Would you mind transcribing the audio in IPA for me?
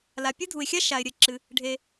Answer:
l a˩ pʲ ɨ˥ dʱ u˩ ɪ̯ xʲ a˥ ʃ a˩ ɪ̯ ɾʲ ɘ˩ ǁ ɨ˩ | ɖʱ e˩

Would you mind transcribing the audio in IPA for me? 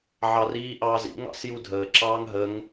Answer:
ʕ ɑ r iː ʔ ɑː z ḭ ŋ ɑ̰ s j u dʱ əː ǁ ɑː ŋ ɦ ə ŋ

